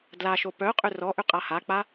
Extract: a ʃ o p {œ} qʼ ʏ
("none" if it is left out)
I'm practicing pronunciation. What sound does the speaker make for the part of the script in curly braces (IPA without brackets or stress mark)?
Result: œ